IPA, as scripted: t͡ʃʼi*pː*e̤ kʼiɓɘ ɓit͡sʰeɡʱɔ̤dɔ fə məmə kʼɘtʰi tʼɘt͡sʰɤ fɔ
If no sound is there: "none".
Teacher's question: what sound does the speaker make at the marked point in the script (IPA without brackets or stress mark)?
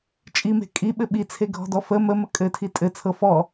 m